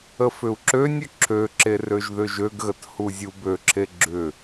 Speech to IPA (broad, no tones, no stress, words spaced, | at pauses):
əfʏu̯ǁønʲʏ ǁʰøǁer øʒðʏʒøɡɣət huzʲubøǁʰe ɡ͡ǁʏ